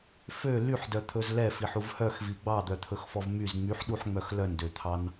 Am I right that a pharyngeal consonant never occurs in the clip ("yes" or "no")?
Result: no